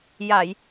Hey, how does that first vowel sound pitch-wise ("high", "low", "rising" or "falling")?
low